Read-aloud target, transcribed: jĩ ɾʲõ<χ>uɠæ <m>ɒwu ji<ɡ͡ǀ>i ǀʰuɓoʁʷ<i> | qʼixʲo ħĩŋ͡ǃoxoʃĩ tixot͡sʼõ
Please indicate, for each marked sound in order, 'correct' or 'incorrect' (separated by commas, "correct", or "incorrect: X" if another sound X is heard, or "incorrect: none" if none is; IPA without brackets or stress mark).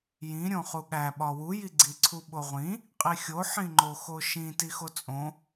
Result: correct, incorrect: ɓ, correct, incorrect: ĩ